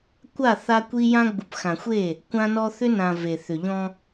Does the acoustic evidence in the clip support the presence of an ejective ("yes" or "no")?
no